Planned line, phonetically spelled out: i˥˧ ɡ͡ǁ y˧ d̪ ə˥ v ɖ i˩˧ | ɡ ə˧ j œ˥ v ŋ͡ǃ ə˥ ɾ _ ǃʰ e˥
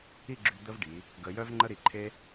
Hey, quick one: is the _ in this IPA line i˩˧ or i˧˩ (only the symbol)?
i˧˩